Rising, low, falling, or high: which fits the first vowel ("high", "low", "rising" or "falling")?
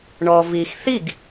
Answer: low